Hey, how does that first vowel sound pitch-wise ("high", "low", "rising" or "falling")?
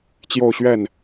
falling